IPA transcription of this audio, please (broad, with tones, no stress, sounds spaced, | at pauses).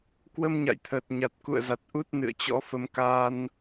k w ə˧ m ɲ a̰˧˨ j t̪ʰ əː˨˩ t̚ ɲ a˨˩ t̚ k ṵ˧˨ ə̯ z a˨˩ t̚ ʔ u˦˥ t̚ n ɨ̰˧˨ ə̯ t͡ɕ ɔ̰˧˥ f ə˧ m k a˧ n